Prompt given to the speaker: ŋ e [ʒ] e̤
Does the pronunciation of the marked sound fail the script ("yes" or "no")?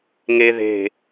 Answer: yes